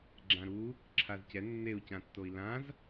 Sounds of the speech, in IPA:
ɡ͡ǁ ã ɾ u | ǁʰ a z c ɛ nː e u̯ c ã tː o i̯ l ã z

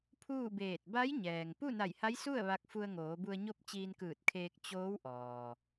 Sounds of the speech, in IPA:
pʰ uː˥˨ b eː˧˩ t̚ b a˧˥ j ɲ ɛː˩ ŋ p u˥˨ n a˧˩ j h a˧˥ j s u˥˨ ə̯ ʋ a˧ k̚ f u˧ ə̯ ŋ oː˩˧ b u˧ ə̯ ɲ o˥˨ p̚ t͡ɕ iː˧ n k ɯː˧˩ t̚ kʰ eː˧ k̚ t͡ɕ oː˧˥ w ʔ ɔː˩

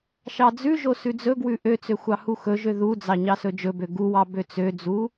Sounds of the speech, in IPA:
ʃ ɑ d͡z ʉ ʒ o s ʉ d͡z ɵ ɡ w ʉ ʔ ø t͡s ø xʷ ɑ h u x ɵ ʒ ø ð u d͡z ɑ ɲ ɑ s ɵ d͡ʒ ɵ b ø ɡ u w ɑ b ø t͡s ø d͡z u

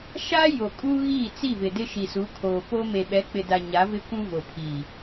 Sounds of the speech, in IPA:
ʃ a˦ j o˨ kʼ u˦ ɣ iː˦˨ t͡s i˦˨ v ɪ˨ d ɪ˦ ʃ i˨ s u˨˦ kʰ oː˨ p o˦ m e˨ ɓ ɛ˨˦ k͡p ɪ˨ d a˨ ɲ a˨˦ v ɪ˦ kʷ ũ˦ v o˨ pʰ iː˨

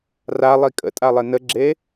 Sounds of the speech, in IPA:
r a lˠ i kʼ ə̰ tʼ a lˠ e n ə ɡ͡ǁ e

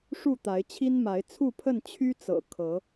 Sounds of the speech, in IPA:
ʂ u˥˨ t̪ a˨˦ ɪ̯ t͡ɕʰ i˦ n m a˨˦ ɪ̯ t͡sʰ u˥˨ pʰ ə˥˨ n t͡ɕʰ y˦ t͡s ɤ̰˨˩ kʰ ɤ˨˦

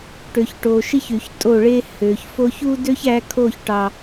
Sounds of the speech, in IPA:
ʈ ø˨ ç ʈ o˨ ʃ i˦ ç y˨ ç tʼ o˦˨ ɭ e˦ h ø˨ ç f o˧ ç u˦ d ø˦ ç æ˧ kʰ o˦˨ ç ʈ ɑ˨

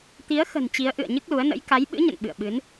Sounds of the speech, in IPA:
t̪ i˨˦ ə̯ x ə̤˨˩ n t͡ɕ i˨˦ ə̯ ʔ ɨ̰˧˨ ə̯ ɲ ɨ˦˥ k̚ l u˨˦ ə̯ n ə̰˧˥ j k a˨˦ j ɓ ɨ̰˧˥ ɲ ə̰˧˨ n ɓ ɨ̰˧˨ ə̯ ɓ ɨ˨˦ n

